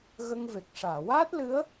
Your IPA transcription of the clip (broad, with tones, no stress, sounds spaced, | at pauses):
ɣ ə˧ ŋ v e˨˩ k̚ ʂ aː˨˩˨ w aː˦˥ t̚ l ɨ˧˥ ə̯